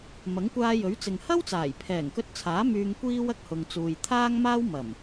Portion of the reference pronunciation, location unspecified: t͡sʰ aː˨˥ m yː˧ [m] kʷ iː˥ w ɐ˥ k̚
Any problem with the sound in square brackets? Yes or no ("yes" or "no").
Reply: yes